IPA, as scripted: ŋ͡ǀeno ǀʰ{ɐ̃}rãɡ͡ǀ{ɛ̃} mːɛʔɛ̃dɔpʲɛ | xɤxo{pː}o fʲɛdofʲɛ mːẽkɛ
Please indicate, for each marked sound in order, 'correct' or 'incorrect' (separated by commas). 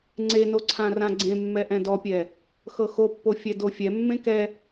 incorrect, incorrect, correct